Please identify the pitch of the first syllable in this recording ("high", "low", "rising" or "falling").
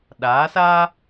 rising